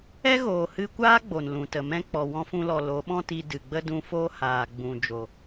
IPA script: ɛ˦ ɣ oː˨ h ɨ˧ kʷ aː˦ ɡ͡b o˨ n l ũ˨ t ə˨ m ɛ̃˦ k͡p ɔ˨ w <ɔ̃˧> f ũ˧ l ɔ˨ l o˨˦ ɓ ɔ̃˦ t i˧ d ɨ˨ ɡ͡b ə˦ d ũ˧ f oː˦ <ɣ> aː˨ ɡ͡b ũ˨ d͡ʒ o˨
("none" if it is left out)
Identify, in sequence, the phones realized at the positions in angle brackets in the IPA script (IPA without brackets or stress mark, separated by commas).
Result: ɔ̃˧, h